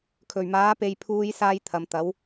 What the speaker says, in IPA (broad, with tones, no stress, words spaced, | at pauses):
kʰɵ˨˩ɥmaː˨˥pe˨˧jpʰuː˧j saː˥jt̪ʰɐ˨˧m t̪ɐ˨˥w